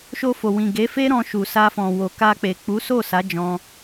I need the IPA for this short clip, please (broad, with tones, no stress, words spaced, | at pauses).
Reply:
ʃo˧fo˨wĩ˨ ɡe˨˦fe˦ɾɔ̃˧ ʃu˨sa˧fɔ̃˨wo˨ ka˧k͡pe˨k͡pu˨˦so˦˨ sa˨˦d͡ʒɔ̃˧